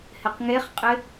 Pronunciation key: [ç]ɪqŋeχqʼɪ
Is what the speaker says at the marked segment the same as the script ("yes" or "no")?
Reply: no